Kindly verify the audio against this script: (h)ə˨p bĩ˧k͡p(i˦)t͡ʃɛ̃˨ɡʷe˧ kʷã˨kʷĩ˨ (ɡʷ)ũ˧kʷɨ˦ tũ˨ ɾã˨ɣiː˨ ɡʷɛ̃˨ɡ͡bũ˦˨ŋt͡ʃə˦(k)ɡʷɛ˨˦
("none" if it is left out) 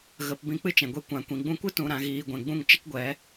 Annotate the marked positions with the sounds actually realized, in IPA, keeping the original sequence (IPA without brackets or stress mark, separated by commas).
ɣ, ɨ˦, ɡ͡b, k